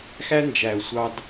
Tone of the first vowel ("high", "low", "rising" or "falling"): high